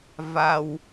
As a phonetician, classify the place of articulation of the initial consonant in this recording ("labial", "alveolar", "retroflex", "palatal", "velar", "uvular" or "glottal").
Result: labial